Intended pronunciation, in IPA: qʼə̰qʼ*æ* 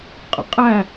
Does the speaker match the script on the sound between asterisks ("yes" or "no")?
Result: yes